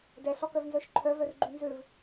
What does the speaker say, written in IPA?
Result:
d ɛ ɬ ɔ k œ v n z œ ʃ ǃʰ œ v œ r ɡ͡ǃ y n z ø v

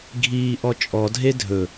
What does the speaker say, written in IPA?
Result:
ɡʱ iː ʔ ɔ t͡ʃʼ ɔ dʱ e dʱ ɵ

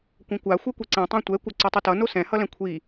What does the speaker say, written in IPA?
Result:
kʷ ɛ̃ kʷ a xʷ ɛ kʷ e ǀ ẽ tˤ ã tʷ ɛ kʷ ʌ ǀ u tˤ u t ʌ n o s ɛ̃ h ʌ l ɛ̃ kʷʰ i

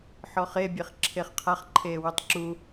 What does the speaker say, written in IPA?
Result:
ħ ɔ χ e bʲ e χ ǁʰ e χ qʰ a χ ǃʰ eː w u tˤ ǁ u

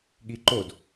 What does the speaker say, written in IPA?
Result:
ɠ i ǃ o d

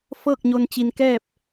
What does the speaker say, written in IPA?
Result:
f ɤː˥˨ k̚ ɲ o˧ n t͡ɕ i˧ n k ɛː˥˨ p̚

